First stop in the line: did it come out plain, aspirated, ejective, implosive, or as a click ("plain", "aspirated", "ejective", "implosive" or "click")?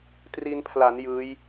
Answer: plain